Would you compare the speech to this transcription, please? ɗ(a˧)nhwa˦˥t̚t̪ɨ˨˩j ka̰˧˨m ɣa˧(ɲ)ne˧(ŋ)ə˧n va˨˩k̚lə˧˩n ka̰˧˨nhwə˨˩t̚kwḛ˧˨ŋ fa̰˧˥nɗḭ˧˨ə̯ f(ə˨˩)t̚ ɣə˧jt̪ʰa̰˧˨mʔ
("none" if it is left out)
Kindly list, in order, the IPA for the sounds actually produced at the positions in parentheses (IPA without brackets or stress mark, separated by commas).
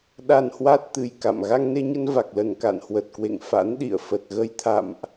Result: a˧, ŋ, ɲ, ə˨˩